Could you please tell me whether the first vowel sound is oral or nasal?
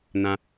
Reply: nasal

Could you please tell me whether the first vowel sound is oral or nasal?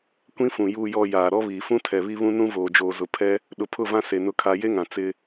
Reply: nasal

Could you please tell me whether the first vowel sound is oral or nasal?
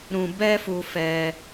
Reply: nasal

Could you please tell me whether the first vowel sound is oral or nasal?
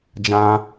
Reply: nasal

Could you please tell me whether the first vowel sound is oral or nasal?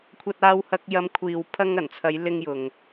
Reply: oral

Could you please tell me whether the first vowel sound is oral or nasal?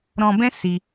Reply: nasal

